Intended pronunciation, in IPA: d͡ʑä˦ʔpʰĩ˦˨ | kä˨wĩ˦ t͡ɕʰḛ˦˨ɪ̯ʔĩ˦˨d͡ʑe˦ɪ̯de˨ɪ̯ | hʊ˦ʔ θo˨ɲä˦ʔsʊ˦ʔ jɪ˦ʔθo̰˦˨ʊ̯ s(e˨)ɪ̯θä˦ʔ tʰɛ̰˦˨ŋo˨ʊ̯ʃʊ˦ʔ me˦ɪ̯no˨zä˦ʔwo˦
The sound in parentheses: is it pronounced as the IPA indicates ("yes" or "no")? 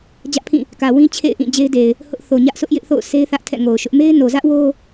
no